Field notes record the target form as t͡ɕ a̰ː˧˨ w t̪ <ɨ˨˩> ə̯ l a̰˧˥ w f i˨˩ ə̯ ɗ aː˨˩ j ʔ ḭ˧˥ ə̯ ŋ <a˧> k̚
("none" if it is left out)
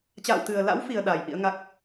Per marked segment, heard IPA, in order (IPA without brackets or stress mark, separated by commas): ɨ˨˩, a˦˥